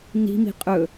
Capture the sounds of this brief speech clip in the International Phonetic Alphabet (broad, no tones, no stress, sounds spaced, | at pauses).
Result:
n i̤ m i̤ qʼ ɵ